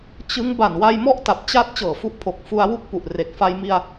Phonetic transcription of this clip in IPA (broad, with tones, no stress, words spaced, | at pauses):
t͡ɕɯ˦˥ŋ ba˨˩nwa˧jmɔ˦˥ʔta˨˩p̚ t͡ɕa˦˥t̚ t͡ɕɤː˨˩fu˦˥ʔpʰo˨˩k̚ fu˧a̯wu˥˩k̚pu˨˩ʔ re˨˩k̚fa˧jmi˧a̯